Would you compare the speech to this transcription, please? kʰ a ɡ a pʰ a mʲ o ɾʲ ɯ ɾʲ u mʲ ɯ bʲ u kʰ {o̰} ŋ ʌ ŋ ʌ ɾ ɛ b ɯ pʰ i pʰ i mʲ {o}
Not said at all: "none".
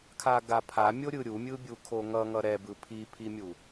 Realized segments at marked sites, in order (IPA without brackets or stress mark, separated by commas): o, u